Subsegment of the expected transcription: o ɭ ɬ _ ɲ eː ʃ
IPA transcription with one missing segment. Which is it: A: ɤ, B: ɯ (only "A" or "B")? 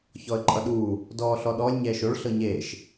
A